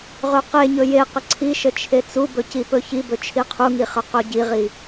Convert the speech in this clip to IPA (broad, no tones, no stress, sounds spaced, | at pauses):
ʁ ɵ q e ɲ ɵ j e q ə ǀʰ i ʃ ə t͡ʃʰ e t͡s u b ɵ c i p ɵ ç i b ɵ t͡ʃʰ i qʰ u ŋ i χ ə q ɵ ɟ i ʁ i